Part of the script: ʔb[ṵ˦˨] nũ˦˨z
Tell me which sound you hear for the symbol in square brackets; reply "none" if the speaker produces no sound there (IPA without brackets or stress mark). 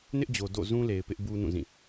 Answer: u˦